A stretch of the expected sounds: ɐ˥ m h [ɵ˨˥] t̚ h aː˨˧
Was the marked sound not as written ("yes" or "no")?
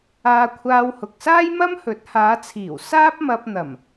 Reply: no